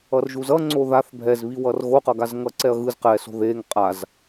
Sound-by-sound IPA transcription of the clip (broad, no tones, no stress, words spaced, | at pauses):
ʌrʒuzʌ ŋ͡ǀoðaθ bʱɛzβi wʌrɣoqʌɡaz ŋʌǀɛɐ̯ɣɯz qɛso̤ ðeŋ qʼaz